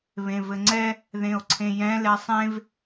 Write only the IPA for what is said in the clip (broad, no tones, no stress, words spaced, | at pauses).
βẽvɘŋ͡ǀɛ | ðẽo̯ǀʰẽjɛ̃ lɛsˤẽv